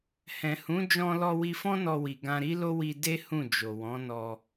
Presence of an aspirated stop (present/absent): absent